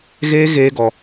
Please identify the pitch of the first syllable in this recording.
high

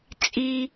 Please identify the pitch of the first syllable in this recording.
high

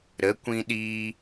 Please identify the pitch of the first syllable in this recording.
rising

